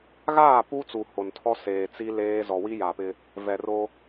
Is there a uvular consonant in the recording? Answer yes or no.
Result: no